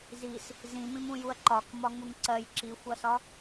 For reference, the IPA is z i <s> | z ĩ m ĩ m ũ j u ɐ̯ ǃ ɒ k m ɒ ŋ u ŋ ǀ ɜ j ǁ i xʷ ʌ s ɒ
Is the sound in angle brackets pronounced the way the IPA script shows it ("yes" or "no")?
yes